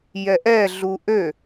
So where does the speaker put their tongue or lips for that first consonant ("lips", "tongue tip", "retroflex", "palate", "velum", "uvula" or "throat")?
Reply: palate